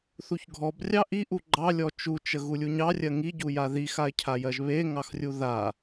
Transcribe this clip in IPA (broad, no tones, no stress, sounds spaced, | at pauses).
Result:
θ u ç ɡʱ ɔ b rʲ ɑ ʔ i ʔ u ɡ͡ǃ ɑ lʲ ɔ t͡ʃ u t͡ʃ ə ɣ u lʲ u ɲ ɑ rʲ ɜ ŋ i ɟ u j a ð i x a ɪ̯ cʰ a j ɜ ʒ β e ŋ ɑ x rʲ u ð a